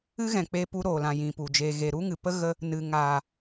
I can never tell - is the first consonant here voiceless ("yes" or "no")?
no